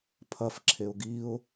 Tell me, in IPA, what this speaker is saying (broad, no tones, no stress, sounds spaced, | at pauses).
pʰ ɐ f ǁʰ e ʊ̯ ɡ i ʊ̯